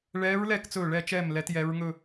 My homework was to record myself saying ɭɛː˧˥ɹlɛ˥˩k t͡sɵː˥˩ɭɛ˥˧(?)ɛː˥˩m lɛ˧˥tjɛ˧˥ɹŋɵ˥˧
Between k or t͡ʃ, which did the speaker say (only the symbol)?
t͡ʃ